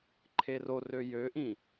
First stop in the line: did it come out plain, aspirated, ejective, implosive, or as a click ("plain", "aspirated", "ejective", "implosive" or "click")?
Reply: click